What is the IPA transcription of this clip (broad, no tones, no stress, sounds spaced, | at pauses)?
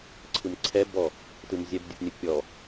ǀʰ ɯ m ǀʰ ɛ b ɔ | t ɯ m zʲ ɛ b dʲ ɯ p nʲ ɯ pʲ ɔ